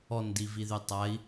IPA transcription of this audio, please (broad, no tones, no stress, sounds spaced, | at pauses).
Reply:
ɔ n d i v i ð y tˤ a i̯